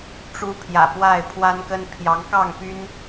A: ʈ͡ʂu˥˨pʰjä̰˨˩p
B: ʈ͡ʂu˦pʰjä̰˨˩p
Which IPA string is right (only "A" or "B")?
B